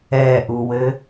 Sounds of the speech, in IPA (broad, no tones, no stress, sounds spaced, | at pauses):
ɛ ʔ u w ɘ